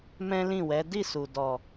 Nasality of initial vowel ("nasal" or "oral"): nasal